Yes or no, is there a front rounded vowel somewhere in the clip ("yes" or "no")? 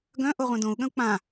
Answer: yes